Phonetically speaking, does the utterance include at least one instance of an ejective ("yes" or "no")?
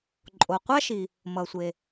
yes